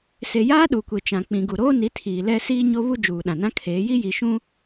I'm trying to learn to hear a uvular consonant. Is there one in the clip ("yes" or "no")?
no